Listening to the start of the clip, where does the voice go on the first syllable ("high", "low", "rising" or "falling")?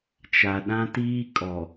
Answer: low